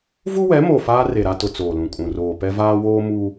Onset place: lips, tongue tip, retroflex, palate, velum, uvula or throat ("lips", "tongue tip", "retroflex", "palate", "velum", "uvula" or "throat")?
lips